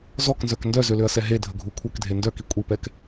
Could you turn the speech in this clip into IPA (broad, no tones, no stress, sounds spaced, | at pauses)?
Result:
z ɔ k n z œ k n d œ z ø l ø ɐ̯ s ɛ ɦ e dʱ ə ɡʱ u kʷʰ œ k dʱ e n d œ k i kʷʼ i p ɛ k